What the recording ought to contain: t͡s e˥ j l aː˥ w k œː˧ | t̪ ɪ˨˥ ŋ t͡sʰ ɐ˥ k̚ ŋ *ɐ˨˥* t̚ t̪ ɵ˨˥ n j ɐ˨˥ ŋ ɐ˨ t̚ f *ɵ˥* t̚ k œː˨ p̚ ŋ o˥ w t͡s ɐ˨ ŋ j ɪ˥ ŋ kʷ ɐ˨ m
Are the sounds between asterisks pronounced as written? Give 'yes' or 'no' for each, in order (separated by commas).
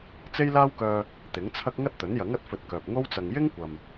no, no